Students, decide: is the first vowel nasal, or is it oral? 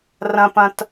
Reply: nasal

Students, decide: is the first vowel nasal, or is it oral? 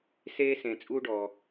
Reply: oral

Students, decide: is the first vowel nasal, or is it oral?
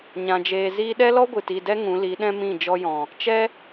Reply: nasal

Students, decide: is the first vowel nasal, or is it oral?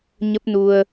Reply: oral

